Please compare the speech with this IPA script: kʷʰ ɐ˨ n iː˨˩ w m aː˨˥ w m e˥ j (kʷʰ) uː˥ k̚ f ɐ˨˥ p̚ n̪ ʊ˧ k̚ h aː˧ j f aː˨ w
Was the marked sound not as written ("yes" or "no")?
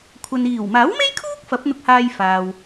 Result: yes